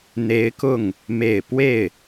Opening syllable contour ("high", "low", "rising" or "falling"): rising